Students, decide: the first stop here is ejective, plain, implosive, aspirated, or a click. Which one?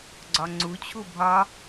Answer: click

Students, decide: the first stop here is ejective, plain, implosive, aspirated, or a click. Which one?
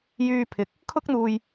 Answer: aspirated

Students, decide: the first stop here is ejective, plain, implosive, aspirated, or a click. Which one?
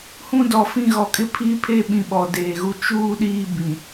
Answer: plain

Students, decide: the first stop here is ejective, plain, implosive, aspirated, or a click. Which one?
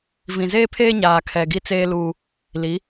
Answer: aspirated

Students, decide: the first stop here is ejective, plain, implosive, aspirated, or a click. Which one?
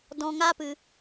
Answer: plain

